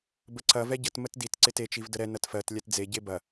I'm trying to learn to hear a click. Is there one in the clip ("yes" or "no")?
yes